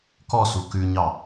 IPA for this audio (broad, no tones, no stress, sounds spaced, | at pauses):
k ɔ s u k ʉ ɲ ɑ